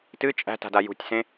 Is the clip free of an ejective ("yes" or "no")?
no